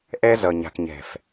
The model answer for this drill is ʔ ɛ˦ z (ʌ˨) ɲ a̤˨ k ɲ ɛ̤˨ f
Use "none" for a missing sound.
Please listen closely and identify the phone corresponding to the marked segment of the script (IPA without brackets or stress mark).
ʌ˨